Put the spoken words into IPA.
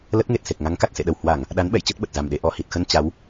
l ə˦˥ t̚ ŋ e˨˩ t̚ s e˨˩ k̚ ŋ a˨˦ ŋ k a˨˩ t̚ s ḛ˧˨ ɗ ə˨˩ w h w a˧˩˨ ŋ | ɗ a˨˦ n ɓ ɛ̰˧˨ j t͡ɕ ə˦˥ t̚ ɓ ə˨˩ t̚ z a˨˩ m ɗ e˧ ʔ ɔ˧˩ h i˨˩ t̚ x ə˧ n t͡ɕ a˨˦ w

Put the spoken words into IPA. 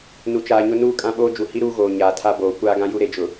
n u˨ t͡ʃ aː˨ ɲ ʊ˦ n uː˦ kʼ ã˦ ɓ oː˦ d͡ʒ u˨ h i˦ ɾ uː˦ ɣ oː˨ ɲ aː˨ tʰ a˦ b oː˨ kʷ aː˦ ɡ ã˦ j u˦ ɾ e˨ d͡ʒ ʊ˨

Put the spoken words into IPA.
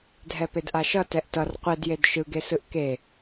dʱ ɛ p e d ʔ a ʃ ʌ t ɛ ʔ t ʌ r qʷ e d j e d ʃ ɯ ɡ e s ɯ ʔ k e

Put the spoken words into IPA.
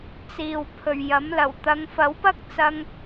t͡s iː˨ w pʰ ɵ˨ ɥ j ɐ˨˥ m l ɐ˨˩ w t̪ ɐ˨˧ ŋ f ɐ˨˥ w p ɐ˥ k̚ t͡s ɐ˧ ŋ

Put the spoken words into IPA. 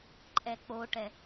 ǃʼ ɛ k͡p o ʈ ɛ

